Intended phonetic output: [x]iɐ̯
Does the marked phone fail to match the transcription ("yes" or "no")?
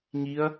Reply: yes